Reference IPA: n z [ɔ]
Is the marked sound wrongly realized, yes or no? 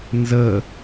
yes